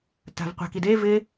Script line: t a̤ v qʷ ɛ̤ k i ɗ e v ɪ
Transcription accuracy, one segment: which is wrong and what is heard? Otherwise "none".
ɗ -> d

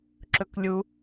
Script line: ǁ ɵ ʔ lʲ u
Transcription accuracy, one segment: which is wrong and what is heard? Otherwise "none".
ʔ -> k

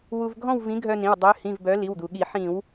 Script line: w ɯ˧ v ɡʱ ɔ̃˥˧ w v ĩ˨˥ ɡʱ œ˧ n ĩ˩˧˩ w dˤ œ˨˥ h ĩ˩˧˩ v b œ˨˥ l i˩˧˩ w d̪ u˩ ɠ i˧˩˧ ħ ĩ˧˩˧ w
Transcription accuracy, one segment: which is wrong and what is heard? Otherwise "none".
ɯ˧ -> u˧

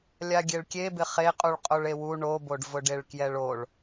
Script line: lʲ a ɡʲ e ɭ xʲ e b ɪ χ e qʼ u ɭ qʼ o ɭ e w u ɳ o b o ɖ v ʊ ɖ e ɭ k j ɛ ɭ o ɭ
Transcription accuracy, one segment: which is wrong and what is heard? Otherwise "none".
xʲ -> kʲ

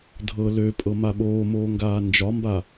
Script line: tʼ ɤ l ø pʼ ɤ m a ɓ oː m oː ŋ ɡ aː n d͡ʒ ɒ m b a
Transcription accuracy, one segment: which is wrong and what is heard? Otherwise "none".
tʼ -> dʱ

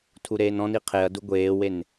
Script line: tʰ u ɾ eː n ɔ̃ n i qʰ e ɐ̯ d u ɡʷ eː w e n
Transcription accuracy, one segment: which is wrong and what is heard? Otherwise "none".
none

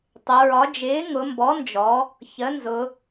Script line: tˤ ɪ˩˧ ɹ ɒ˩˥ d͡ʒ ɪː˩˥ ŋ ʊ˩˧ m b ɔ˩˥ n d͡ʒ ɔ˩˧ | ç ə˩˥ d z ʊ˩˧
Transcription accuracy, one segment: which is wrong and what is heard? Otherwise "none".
d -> n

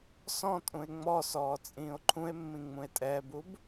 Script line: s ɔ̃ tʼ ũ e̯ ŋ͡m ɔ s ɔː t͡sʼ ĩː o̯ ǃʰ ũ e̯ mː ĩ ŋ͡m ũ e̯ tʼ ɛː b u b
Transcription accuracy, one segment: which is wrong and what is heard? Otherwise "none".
none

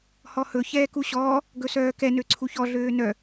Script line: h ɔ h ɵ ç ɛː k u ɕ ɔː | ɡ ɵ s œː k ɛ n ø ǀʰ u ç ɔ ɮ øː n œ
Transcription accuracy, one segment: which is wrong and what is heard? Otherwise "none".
none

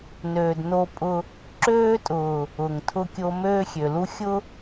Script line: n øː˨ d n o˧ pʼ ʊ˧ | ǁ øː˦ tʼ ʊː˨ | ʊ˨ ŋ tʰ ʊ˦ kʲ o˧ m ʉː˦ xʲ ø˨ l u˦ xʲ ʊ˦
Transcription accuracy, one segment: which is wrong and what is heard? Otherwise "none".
ʉː˦ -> øː˦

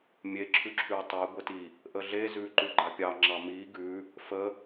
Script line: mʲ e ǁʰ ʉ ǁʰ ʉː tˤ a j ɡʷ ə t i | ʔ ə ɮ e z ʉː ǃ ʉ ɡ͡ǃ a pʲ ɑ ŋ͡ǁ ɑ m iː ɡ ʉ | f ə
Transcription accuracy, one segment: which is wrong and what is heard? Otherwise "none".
none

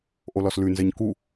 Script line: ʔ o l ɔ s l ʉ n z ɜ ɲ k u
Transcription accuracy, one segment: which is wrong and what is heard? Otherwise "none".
none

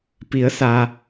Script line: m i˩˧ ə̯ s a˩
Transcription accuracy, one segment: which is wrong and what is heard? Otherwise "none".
m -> p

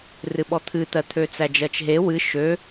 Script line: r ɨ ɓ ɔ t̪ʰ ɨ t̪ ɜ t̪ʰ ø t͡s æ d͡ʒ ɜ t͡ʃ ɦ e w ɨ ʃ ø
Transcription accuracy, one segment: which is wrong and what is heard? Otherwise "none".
none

